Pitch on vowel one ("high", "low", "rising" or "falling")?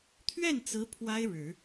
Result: falling